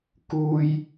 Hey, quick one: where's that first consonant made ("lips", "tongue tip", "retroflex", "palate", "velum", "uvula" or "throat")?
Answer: velum